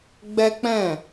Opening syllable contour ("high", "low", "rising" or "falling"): high